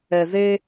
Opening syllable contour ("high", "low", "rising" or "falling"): low